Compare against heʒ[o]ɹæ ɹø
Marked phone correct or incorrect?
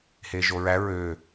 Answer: correct